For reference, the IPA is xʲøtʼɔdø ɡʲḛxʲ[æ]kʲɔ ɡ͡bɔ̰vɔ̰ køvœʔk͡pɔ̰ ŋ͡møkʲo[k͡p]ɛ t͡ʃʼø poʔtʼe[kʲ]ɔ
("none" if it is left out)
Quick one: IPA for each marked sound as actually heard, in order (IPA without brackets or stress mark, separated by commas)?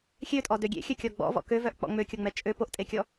œ, ŋ͡m, kʲ